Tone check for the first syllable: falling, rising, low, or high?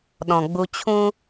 low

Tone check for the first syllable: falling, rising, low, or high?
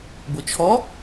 low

